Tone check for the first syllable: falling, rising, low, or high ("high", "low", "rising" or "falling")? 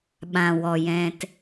low